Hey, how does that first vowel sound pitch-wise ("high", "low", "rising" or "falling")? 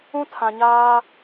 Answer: high